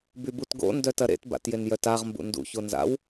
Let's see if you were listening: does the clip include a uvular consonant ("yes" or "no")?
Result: yes